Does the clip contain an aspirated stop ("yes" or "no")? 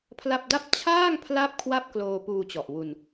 yes